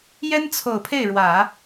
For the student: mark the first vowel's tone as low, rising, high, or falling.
high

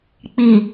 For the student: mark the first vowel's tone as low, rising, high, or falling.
low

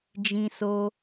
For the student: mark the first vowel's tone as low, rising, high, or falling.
high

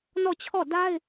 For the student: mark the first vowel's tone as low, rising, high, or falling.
falling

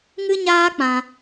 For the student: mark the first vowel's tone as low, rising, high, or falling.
high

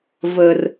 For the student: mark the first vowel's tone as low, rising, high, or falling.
high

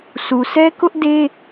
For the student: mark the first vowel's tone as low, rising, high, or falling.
low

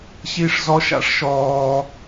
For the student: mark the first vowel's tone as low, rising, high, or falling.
high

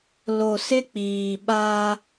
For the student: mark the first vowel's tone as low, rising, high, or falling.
low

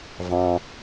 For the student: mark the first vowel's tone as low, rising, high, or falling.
low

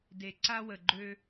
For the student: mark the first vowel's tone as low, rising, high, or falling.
low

